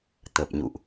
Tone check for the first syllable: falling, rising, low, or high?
low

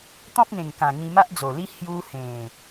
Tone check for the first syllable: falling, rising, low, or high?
high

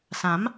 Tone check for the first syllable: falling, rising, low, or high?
rising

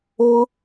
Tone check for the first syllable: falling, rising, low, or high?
high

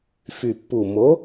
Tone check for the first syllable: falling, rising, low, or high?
low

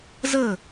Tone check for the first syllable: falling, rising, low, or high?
falling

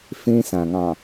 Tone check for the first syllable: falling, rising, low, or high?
high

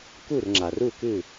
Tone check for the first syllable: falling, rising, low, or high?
falling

